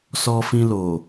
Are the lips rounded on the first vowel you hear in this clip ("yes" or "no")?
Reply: yes